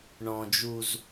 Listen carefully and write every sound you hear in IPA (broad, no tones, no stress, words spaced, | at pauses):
ɳɔ̃d͡ʒuz